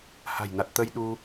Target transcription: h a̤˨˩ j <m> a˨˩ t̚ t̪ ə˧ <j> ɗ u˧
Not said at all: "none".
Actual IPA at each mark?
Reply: n, j

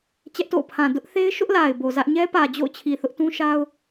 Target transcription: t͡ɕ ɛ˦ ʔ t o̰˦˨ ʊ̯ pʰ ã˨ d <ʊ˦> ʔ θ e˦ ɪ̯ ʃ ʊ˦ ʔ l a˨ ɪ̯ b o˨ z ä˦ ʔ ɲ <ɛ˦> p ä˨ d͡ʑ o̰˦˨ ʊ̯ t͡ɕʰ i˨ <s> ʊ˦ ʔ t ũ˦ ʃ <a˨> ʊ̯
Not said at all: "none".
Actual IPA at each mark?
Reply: ʊ˦, ɛ˦, θ, a˦

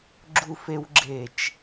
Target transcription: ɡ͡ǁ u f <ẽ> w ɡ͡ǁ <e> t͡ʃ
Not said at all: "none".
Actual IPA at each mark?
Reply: e, e

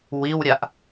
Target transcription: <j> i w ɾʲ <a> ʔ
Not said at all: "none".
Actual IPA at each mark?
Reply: w, a

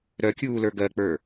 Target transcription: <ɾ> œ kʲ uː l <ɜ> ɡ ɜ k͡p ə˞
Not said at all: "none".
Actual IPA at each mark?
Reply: ɾ, ə˞

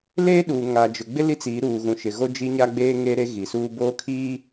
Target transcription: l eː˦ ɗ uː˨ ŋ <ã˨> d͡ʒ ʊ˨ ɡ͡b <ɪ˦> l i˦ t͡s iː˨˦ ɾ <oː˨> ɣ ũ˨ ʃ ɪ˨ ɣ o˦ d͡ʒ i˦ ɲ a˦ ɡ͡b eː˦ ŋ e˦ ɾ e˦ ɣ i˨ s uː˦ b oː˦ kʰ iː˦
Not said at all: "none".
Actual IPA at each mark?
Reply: a˨, ɪ˦, uː˨

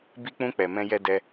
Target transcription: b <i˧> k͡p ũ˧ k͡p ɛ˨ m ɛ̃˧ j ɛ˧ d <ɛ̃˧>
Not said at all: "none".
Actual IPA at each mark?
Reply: i˧, ɛ˧

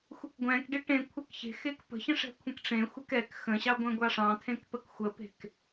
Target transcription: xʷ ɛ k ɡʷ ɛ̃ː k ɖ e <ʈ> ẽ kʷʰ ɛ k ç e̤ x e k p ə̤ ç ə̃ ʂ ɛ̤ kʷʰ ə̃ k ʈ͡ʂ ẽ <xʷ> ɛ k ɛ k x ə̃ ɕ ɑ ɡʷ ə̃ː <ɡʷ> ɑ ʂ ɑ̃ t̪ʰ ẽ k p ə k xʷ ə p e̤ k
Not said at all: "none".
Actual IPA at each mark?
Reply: ʈ, xʷ, ɡʷ

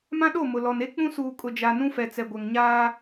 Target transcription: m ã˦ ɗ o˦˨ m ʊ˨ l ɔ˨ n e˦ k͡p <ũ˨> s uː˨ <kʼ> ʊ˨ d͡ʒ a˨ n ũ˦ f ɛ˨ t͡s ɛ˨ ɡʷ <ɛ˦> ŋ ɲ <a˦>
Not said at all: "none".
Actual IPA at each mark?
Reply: ũ˦, kʼ, ɛ˨, aː˦

